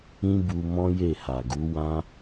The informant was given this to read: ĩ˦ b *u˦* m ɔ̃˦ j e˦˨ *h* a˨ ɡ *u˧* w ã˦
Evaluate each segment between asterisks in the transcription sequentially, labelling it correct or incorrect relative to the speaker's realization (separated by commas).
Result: incorrect, correct, incorrect